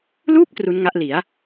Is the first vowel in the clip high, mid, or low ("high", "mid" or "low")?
high